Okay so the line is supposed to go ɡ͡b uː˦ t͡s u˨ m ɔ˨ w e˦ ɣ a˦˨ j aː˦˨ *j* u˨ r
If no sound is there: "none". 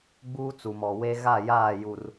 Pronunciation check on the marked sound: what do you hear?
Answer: j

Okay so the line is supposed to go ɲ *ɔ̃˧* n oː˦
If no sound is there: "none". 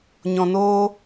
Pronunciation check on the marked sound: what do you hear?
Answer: ɔ̃˧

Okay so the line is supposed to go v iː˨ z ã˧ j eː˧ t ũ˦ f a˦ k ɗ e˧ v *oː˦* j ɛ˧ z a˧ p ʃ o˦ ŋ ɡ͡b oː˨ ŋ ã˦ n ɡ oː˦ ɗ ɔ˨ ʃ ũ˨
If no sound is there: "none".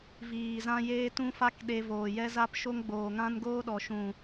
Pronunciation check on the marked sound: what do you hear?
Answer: oː˨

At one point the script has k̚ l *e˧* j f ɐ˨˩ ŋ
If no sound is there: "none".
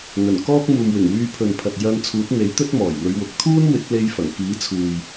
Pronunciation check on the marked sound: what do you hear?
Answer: e˧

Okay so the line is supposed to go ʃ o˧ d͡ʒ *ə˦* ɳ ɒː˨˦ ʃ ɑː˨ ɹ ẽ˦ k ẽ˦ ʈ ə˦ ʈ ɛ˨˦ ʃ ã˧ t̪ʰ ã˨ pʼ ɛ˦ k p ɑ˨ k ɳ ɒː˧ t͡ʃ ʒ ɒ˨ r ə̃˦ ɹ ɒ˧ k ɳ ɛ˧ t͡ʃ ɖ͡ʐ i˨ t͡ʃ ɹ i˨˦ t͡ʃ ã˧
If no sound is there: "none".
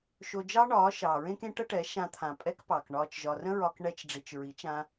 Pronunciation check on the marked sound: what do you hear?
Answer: ɑ˦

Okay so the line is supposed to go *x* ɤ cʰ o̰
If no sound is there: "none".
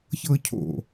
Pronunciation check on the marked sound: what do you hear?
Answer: ç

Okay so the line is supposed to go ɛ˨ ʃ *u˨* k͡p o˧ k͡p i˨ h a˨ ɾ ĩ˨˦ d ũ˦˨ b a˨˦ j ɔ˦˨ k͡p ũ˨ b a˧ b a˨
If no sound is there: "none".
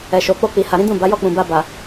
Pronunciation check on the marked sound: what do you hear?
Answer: o˨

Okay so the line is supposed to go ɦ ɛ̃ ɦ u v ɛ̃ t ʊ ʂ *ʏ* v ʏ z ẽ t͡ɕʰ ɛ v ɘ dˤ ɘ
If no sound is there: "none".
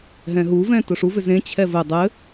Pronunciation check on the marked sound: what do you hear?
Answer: u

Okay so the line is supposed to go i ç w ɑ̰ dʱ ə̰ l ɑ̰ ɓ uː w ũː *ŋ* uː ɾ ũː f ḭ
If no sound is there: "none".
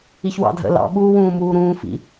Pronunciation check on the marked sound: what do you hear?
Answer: m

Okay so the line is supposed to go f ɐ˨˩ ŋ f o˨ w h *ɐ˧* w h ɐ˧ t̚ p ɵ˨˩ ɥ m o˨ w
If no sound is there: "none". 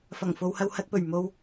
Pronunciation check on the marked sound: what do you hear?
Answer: ɐ˧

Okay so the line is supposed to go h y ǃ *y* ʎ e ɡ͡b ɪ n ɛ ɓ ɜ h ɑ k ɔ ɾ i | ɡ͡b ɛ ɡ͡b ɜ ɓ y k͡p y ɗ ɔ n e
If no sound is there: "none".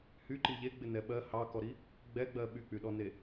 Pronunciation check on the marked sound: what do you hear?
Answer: i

